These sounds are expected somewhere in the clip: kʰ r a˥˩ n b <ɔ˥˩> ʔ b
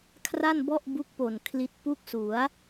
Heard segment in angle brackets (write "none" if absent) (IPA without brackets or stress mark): ɔ˥˩